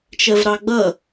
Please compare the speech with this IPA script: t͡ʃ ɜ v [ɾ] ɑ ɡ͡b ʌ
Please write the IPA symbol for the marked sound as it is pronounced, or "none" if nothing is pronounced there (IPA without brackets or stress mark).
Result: ɾ